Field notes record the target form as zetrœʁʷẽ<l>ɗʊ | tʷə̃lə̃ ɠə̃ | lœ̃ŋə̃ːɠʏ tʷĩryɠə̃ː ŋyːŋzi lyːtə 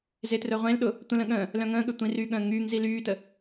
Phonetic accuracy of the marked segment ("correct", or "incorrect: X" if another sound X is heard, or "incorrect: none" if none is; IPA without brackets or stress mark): correct